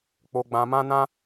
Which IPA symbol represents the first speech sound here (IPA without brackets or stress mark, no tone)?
k͡p